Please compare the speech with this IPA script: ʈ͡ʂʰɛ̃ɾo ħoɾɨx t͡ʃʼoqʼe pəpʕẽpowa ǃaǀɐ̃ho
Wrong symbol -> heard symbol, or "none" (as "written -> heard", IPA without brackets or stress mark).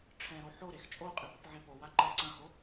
ɨ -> e